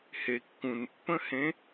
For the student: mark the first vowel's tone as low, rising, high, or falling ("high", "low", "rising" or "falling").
low